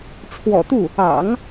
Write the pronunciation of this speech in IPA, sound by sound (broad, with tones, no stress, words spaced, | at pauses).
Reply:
ʈ͡ʂʰwɔ̰˨˩t̪u˥˩ | ɑ̰˨˩˦ŋ